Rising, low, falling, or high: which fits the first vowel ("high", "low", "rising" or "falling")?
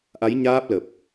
rising